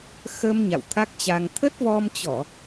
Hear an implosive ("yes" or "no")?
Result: no